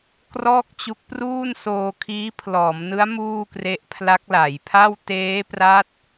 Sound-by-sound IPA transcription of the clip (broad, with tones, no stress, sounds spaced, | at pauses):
k r ɔː˥˩ k̚ t͡ɕ u˦˥ k̚ p r uː˥˩ n s oː˧ kʰ iː˦˥ pʰ l ɔː˩˦ m n ɯ˦˥ a̯ m uː˥˩ k r e˦˥ ʔ pʰ l a˦˥ k̚ l a˩˦ j pʰ a˥˩ w t eː˦˥ p r a˦˥ t̚